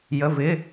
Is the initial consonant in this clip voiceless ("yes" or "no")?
no